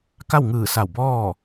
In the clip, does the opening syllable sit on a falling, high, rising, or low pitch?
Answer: falling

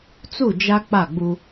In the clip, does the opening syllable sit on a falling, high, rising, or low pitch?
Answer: falling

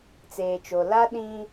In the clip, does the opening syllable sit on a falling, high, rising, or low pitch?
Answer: low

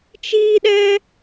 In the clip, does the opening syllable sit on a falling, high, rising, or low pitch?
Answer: high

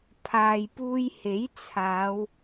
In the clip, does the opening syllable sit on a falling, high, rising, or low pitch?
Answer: low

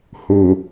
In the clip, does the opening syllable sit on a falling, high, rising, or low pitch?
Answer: low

